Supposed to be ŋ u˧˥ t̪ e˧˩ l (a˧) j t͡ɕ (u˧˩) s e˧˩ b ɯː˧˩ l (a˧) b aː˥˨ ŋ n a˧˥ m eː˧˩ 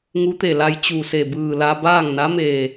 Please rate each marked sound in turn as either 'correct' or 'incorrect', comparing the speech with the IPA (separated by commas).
correct, correct, correct